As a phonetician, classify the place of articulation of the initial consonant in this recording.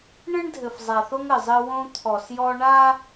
retroflex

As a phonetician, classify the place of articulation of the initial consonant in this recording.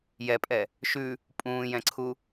palatal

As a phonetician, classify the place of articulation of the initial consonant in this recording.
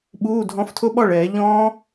labial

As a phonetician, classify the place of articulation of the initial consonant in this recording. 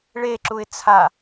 retroflex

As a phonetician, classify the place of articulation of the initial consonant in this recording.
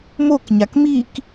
labial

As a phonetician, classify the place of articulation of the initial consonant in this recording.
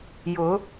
palatal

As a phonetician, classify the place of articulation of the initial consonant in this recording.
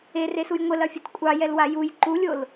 alveolar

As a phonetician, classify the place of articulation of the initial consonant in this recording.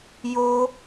palatal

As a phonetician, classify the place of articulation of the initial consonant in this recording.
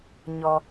palatal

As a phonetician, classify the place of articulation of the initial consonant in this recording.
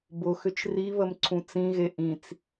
labial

